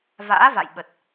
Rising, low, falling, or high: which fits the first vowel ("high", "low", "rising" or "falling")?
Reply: rising